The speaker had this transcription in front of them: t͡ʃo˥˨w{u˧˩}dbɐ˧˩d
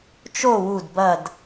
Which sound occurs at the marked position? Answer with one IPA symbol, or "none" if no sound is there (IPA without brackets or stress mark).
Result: u˧˩